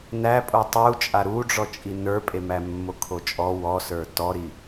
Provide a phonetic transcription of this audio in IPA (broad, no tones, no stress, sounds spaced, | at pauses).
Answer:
n æ pʼ o tˤ u t͡ʃʼ a ɾ u ɖ͡ʐ ɔ t͡ʃʼ i n ə˞ pʼ e m æ mː o kʰ o t͡ʃʼ ɔ w ɔ s ə˞ t ɔ ɾ i